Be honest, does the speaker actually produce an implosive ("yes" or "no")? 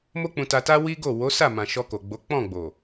no